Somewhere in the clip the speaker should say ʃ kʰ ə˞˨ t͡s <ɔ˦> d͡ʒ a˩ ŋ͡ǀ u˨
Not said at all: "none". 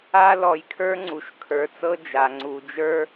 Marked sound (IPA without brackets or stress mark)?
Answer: ɤ˦